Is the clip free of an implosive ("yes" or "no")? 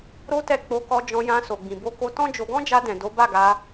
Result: yes